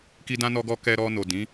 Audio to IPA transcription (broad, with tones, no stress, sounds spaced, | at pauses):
k i˦ d ã˦ n ɔ˦ ɡ ɔ˦ k ɛ˧ ɾ ɔ˧ n o˨ d ĩ˨˦